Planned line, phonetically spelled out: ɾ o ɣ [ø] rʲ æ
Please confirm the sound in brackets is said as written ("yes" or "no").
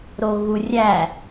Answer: no